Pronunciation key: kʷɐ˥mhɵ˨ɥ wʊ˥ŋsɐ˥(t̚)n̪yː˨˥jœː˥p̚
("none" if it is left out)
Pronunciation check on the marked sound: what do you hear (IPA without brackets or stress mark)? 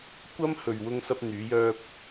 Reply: p̚